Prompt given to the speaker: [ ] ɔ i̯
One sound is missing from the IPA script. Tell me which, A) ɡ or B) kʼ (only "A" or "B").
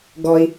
A